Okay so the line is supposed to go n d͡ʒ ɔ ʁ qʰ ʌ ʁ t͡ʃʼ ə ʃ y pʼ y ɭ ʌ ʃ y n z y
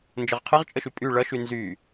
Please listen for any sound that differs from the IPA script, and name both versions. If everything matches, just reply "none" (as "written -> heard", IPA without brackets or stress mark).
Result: ɔ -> ʌ